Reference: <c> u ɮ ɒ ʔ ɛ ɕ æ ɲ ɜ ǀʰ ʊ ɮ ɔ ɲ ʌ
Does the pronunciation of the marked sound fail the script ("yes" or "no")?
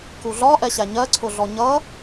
yes